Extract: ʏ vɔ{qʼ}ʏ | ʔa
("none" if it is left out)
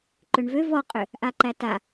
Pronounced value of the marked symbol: qʼ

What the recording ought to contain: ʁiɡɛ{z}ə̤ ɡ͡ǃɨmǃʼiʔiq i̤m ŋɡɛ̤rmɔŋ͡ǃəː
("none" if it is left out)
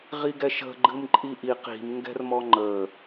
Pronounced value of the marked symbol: ʃ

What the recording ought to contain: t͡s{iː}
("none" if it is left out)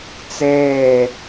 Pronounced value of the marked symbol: eː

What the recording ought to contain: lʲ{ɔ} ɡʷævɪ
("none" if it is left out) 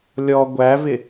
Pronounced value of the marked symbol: ɔ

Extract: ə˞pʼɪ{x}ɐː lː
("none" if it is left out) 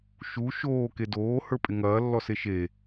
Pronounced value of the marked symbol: ŋ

